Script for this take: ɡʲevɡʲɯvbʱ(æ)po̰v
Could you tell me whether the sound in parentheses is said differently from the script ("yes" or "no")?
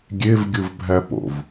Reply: no